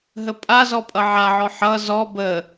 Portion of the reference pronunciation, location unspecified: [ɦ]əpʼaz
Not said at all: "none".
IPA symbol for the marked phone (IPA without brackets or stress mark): ɦ